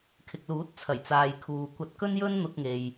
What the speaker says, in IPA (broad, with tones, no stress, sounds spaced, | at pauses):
kʰ ɪ˨ k̚ l uː˨˥ t̚ t͡sʰ ɐ˨˩ j t͡s aː˨ j kʰ uː˨ kʷ ɐ˧ t̚ k ɵ˥ n j ɵ˥ n n̪ ʊ˧ k̚ ŋ e˨ j